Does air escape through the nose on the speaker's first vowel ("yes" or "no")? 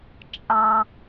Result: yes